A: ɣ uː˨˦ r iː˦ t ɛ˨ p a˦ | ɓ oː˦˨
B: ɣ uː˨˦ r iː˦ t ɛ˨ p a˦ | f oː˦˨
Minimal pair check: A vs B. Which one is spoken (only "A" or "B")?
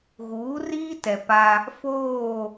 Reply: B